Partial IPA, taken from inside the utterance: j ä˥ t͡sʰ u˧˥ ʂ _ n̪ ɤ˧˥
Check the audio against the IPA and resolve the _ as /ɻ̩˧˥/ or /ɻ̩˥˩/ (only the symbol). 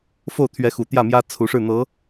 ɻ̩˥˩